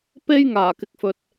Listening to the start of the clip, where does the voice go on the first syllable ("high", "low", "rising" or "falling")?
high